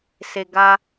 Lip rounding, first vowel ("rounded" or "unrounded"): unrounded